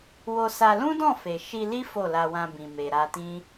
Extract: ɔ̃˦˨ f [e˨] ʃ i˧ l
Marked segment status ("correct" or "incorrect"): correct